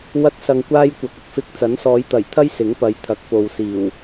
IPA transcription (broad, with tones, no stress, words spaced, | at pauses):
wɐ˥t̚sɐ˧ŋkʷaː˥j kʷɐ˨k̚ʊ˨k̚fɪ˧k̚ t͡sɐ˨˥nsɔː˨˧jt̪ɐ˨˩jt̪ʰɐ˥j sɪ˨˥ŋpɐ˨˧j t̪ʰɐ˨˥k̚po˨wsiː˨˩w